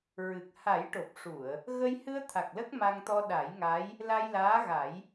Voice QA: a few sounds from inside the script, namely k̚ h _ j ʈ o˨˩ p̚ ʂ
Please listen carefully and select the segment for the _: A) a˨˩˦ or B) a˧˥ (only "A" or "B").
A